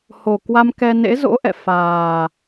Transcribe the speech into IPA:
ho˨˩kwa˧m kɛ˧nḛ˧˥ zo̰˧˥ʔɛ̰˧˨ faː˨˩

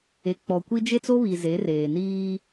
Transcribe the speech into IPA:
e˨k͡pɔ˨kʷi˦ d͡ʒe˦t͡so˦βi˨ ze˨˦reː˨niː˦

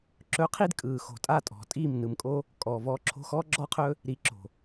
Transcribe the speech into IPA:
ǁɵ˨˦qʰi˧d kʼɯː˨xo̤˨ tʼa˦˨tʼɔ̤˨tʼiː˦˨m nɯ˧mkʼo˦ | kʼɔː˨vɔː˧ ǁʰo̤˧xɔː˦ɡ͡ǁɔ˦qʰɵ˦ | ɾi˨ ǁo̤˨

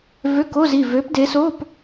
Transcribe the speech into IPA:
vø˧˥˧ko˧˥˧zi˥˨ vø˨˦pde˨˦so˧˥˧p

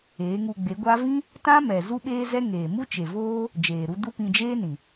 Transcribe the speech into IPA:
eː˨˦ŋu˧ɡ͡be˨˦ɡʷa˦ vĩ˦ | tã˦ mɛ˨ zu˦ɓeː˦zɛ˦ŋeː˨ mu˦t͡ʃe˨voː˦ | d͡ʒeː˨ɾu˧ du˦pĩ˧d͡ʒeː˦nĩ˨

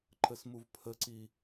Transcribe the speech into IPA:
ǃəsmuvpʰəǀi

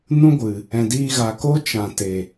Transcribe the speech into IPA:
nũ˦ɡʷɨ˨ | ɛ̃˨diː˧ɣa˨ko˦ t͡ʃã˨te˨

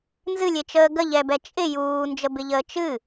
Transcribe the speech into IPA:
nzɨlʲet͡ʃəː ɡəʎɛbɛ t͡ʃʼɪ juːnd͡ʒəbɪʎəː t͡ʃɨ

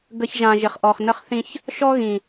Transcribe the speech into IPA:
ɡə˨ç ʒã˨ ʒɪ˨χʔɔ˨χnə˦χθĩ˦ç | ʃɔ˦ɣĩ˨

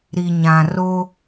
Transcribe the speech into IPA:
ɾi˨ɲã˨ ro˦

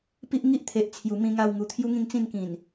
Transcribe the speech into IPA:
pi˦ʔŋi˦ʔ t̪ʰe˨ʔt͡sʰju˨˩ mĩ˨˩ŋa˨˩w ŋu˨˩t̪ʰju˦ŋĩ˥˧ŋt͡sĩ˥˧n kĩ˨˩n

